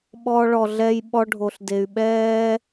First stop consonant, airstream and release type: implosive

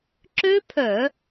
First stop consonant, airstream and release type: click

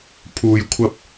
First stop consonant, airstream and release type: aspirated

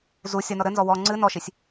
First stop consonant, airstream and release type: click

